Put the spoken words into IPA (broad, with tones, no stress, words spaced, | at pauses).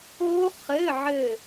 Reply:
o˦˥χɘ˧˥˧ʕɘ˦˨